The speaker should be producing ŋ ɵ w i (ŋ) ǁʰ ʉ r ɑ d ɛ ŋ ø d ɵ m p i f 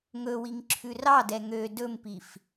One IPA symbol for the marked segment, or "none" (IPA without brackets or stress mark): ŋ